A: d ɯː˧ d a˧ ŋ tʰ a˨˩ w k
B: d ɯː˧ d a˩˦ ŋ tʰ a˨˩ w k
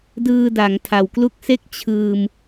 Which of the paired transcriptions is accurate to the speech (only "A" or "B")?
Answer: B